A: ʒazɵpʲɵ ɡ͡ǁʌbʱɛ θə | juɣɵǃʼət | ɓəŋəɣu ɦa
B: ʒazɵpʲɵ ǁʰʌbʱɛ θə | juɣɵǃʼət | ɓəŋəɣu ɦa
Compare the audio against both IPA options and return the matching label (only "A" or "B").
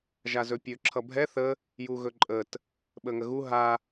B